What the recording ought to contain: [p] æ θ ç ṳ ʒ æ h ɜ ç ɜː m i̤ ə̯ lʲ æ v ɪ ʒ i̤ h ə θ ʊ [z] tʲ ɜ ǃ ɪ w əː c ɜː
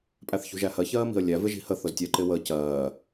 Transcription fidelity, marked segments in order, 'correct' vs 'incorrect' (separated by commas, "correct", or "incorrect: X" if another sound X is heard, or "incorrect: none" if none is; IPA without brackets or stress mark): incorrect: pʼ, correct